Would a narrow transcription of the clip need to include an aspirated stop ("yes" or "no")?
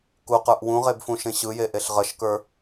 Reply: no